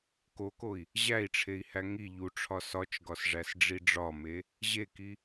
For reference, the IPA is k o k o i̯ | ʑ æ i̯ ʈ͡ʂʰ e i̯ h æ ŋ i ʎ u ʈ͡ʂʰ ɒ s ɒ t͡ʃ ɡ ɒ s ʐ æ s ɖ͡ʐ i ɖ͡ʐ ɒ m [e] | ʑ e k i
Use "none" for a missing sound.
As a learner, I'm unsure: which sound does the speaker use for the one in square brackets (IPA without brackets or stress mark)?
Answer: e